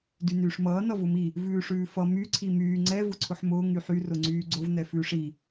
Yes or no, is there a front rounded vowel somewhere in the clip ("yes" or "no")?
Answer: yes